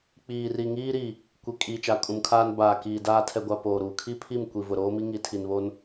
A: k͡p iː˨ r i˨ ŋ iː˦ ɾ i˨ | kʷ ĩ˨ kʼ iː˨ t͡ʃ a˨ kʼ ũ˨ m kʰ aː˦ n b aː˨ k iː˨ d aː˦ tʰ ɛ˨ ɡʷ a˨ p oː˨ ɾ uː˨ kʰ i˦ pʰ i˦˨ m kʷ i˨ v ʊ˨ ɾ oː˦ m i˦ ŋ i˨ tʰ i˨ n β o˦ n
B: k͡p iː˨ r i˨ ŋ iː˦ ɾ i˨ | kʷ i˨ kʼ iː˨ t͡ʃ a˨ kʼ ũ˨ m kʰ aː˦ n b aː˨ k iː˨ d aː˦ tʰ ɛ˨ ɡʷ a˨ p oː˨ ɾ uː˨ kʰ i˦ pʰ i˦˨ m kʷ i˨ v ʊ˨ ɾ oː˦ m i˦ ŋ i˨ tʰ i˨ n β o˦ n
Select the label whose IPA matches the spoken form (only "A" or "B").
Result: B